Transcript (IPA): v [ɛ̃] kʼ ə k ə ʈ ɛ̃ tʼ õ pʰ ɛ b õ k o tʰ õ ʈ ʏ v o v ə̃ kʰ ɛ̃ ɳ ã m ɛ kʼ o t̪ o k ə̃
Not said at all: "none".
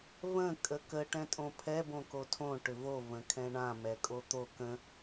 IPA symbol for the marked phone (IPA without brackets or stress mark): ə̃